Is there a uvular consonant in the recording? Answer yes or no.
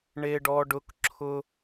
no